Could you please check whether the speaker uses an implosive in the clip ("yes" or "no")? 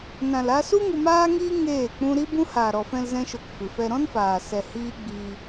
no